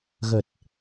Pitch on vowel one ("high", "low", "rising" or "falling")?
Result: low